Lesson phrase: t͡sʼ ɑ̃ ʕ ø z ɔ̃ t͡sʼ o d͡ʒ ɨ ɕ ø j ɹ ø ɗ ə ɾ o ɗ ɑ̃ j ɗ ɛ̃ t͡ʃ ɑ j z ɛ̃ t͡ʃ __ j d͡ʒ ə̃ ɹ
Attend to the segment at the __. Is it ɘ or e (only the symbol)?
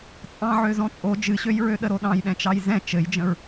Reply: ɘ